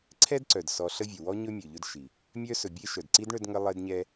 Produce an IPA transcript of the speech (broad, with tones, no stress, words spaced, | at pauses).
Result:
ǀʰɛ˥dǀœ˩dsɔ˨ ɬə˦vʲɵ˩wɔ˥ ɲɵ˥mʲɵ˩ ʎɵ˥dʃi˩ | mʲœ˥sɵ˨bʲe˥ ʃœ˩d ǀi˥dɳœ˦d ŋə˥lˠe˥dɲɛ˥